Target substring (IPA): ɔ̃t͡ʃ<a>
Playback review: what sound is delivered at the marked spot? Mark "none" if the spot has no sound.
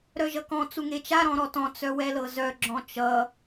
ʌ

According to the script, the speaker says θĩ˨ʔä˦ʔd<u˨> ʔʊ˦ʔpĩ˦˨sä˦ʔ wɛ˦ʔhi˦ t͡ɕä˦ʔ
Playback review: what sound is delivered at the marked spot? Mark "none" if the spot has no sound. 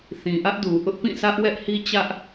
u˨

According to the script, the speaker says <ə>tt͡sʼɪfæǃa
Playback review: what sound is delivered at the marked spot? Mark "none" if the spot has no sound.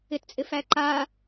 ɪ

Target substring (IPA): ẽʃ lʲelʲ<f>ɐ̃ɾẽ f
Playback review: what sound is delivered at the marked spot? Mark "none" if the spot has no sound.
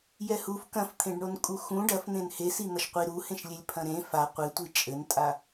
pʰ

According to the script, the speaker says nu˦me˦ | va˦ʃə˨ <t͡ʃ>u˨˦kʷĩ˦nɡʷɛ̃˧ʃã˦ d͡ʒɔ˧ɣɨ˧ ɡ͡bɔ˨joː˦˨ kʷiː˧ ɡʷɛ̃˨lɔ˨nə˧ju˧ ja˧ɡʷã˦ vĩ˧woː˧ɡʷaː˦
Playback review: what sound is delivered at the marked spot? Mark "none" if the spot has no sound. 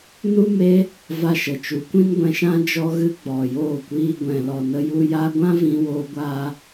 t͡ʃ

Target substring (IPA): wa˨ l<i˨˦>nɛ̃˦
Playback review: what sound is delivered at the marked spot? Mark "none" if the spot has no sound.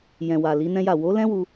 i˨˦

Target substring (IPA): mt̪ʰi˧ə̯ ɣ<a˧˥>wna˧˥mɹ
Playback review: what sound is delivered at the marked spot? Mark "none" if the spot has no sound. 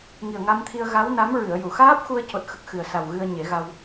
a˧˥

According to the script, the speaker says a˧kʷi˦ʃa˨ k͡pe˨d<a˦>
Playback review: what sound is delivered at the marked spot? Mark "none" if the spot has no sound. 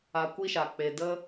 ə˦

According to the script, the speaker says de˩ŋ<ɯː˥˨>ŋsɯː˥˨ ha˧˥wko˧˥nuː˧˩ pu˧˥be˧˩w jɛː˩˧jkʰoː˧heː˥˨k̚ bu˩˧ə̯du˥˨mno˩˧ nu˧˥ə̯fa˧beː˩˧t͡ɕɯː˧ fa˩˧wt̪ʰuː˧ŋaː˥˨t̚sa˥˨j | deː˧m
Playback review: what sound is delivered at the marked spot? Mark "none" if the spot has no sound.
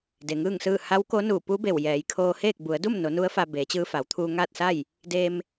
ɯː˥˨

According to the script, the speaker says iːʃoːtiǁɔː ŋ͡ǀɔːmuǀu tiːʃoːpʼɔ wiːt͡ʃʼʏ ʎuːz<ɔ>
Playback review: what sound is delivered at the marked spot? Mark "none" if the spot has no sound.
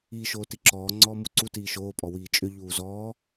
ɔː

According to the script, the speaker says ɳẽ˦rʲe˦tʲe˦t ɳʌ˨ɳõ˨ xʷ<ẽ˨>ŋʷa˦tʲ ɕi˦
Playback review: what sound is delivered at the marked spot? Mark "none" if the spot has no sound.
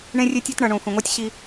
ẽ˨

